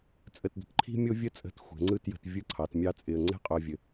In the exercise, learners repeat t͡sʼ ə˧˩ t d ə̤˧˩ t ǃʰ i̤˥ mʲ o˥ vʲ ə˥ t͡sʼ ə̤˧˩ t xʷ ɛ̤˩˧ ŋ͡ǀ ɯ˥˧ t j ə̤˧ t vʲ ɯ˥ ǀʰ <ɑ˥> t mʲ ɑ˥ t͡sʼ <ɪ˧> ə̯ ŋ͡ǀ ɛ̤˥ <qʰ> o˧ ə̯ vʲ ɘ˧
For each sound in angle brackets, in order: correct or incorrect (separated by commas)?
incorrect, correct, incorrect